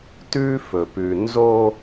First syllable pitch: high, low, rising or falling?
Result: high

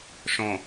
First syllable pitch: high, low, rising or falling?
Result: low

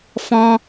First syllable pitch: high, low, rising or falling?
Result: high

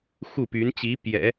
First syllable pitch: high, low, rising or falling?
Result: falling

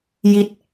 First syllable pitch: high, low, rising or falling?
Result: falling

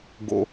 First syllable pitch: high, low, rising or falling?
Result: high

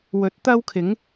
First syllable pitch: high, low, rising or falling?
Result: rising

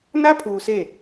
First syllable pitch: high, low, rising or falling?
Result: high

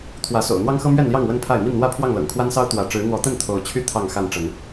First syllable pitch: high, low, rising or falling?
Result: rising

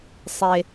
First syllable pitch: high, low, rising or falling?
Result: low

